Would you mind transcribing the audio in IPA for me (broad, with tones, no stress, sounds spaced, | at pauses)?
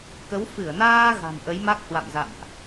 k ə˨˦ w f ɨ˧˩ ə̯ n aː˧ ɣ a̤˨˩ n ʔ ə˨˦ j m a˦˥ k̚ h w a̰˧˨ m z a̰˧˨ m ʔ